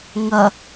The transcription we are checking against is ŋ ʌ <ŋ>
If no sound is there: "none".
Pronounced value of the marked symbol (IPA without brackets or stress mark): none